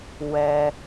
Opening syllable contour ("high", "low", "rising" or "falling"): low